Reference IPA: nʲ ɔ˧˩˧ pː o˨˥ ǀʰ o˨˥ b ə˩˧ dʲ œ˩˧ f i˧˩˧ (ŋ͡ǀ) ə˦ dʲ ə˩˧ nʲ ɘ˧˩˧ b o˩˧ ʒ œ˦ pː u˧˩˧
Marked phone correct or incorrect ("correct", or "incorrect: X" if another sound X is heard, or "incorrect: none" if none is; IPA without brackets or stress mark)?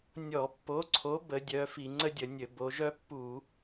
correct